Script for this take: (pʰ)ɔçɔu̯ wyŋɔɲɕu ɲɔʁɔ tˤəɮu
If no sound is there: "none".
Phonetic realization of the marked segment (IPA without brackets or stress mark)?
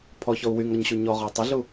pʰ